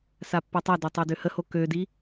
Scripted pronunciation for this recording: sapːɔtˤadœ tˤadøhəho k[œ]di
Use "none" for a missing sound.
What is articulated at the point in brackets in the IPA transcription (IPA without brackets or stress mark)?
ø